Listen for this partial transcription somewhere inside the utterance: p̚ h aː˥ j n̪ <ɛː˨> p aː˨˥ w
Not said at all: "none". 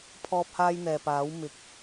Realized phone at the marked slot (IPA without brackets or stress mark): ɛː˨